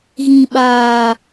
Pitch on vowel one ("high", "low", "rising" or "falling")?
low